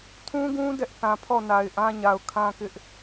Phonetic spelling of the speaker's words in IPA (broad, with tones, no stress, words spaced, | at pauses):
tʰũ˦ɡũ˦ dɛ˦ʔθã˨pʰɔ˦˨na˨ɪ̯ ʔã˦ɲa˨ʊ̯kʰã˦kɪ˦ʔ